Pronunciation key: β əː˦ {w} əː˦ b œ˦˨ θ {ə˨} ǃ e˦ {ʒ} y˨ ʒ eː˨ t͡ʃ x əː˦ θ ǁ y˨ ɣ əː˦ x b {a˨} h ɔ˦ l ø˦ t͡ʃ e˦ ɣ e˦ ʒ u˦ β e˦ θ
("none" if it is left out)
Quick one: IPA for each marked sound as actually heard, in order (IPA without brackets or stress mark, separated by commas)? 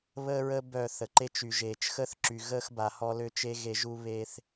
ɹ, ə˨, t͡ʃ, a˨